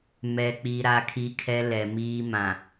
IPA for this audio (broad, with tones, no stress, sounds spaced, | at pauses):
m ɛ˨ k͡p i˨ ɾ a˦ kʰ i˦ kʰ ɛ˦ l ɛ˨ m iː˦ m ã˨